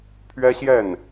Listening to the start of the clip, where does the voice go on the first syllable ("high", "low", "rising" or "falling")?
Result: high